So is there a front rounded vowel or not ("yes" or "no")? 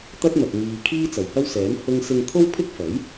no